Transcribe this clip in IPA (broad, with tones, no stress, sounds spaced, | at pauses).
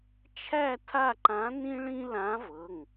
t͡ʃʰ æ˥˧ tʰ a˥˧ ǃ ã˧˥ n ĩ˥ ɭ ĩ˥ l ã˧˥ v ɤ˩˧˩ ŋ